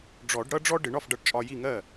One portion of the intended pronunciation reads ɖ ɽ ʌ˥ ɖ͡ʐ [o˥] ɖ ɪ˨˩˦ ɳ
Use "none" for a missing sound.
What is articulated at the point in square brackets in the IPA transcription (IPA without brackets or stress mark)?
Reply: ɔ˥